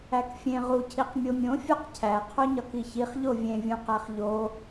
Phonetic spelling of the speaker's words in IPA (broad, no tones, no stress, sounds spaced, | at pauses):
æ k fʲ ẽ ʁ u cʰ i q mʲ o mʲ õ fʲ ɒ q cʰ æ qʰ o ɲ ɒ k i ç i χ ʎ o vʲ ẽ vʲ ũ q æ χ ʎ o